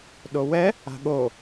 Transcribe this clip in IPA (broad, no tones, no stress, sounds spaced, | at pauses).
ɗ o w ɛ | a̤ ɠ o